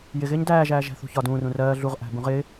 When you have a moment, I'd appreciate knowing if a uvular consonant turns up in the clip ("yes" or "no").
yes